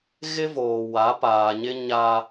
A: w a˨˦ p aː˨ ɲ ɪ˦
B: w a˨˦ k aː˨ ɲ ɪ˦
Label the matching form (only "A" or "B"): A